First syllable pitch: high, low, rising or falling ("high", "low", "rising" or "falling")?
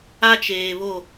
high